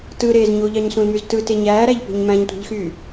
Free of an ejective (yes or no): yes